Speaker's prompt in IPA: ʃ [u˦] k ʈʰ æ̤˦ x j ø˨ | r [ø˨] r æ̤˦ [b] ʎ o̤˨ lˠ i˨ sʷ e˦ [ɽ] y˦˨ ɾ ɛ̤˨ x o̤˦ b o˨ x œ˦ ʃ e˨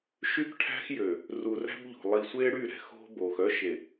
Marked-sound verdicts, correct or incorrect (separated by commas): incorrect, incorrect, correct, correct